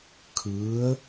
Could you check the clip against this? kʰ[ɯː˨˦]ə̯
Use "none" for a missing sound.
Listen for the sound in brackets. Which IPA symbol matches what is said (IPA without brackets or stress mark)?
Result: ɯː˨˦